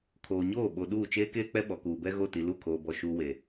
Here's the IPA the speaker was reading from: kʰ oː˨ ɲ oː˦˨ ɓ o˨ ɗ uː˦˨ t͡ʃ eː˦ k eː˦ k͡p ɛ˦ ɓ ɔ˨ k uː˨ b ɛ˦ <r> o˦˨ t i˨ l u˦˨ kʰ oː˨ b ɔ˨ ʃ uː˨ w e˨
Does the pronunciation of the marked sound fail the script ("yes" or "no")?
yes